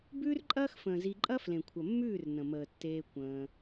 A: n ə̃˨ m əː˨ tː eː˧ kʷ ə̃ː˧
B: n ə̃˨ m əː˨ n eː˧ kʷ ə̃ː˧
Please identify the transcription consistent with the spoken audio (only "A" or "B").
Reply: A